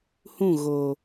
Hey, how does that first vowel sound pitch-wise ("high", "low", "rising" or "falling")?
falling